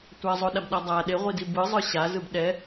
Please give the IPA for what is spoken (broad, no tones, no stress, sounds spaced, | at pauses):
tʷ a zˤ o ɗ a b ɗ a dˤ a ɗ e ʁʷ i d i b ɯ zˤ ɯ ɕ a z ɯ b ɗ ɛ